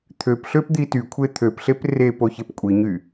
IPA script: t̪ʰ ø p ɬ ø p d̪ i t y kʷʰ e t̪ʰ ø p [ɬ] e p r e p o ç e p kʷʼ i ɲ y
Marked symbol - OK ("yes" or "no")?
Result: yes